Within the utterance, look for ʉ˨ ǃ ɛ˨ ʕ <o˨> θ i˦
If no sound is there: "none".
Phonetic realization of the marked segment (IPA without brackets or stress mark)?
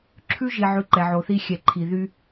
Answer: o˨